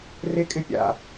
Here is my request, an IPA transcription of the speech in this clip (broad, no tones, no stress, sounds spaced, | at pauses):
r e kʼ ɪ pʲ a̰